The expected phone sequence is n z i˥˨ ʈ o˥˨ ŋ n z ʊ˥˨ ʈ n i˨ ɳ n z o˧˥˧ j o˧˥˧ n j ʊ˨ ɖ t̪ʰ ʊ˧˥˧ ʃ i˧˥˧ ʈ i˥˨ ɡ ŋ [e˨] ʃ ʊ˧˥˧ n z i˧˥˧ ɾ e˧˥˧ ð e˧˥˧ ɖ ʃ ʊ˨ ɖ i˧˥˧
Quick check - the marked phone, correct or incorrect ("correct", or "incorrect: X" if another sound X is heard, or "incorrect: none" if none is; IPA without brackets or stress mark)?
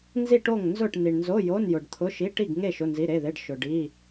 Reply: incorrect: e˥˨